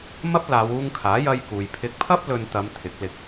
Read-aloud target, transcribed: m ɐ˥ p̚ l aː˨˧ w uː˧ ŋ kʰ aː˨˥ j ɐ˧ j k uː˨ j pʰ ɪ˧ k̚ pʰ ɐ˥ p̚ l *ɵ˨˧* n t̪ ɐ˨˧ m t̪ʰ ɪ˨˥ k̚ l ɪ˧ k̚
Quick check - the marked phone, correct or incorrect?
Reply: incorrect